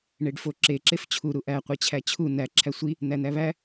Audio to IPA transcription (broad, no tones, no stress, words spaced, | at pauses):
ɳeɖfoǁe ǁeft͡ɕʰu ɾuʔæ qʷet͡ɕʰæt͡ɕʰu næ ǁʰæsʷi | n̪æn̪æβæ